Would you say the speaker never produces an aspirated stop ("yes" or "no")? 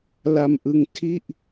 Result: no